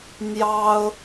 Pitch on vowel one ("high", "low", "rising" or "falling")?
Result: high